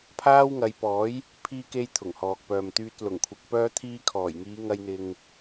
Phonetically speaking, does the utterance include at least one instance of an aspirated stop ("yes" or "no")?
yes